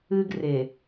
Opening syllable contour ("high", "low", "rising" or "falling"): high